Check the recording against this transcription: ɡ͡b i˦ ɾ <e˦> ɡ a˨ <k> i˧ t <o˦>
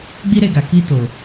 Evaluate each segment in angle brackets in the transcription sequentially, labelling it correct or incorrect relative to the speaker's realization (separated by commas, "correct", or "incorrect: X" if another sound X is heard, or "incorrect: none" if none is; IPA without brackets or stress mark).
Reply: incorrect: e˧, correct, incorrect: o˨